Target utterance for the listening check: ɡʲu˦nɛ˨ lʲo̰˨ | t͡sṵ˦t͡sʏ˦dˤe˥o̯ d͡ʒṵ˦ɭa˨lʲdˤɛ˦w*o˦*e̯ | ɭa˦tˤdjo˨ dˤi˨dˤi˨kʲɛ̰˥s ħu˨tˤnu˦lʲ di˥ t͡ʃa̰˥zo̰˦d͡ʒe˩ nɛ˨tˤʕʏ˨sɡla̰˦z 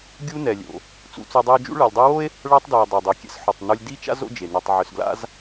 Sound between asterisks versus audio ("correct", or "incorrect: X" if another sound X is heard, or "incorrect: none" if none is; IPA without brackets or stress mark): incorrect: o˥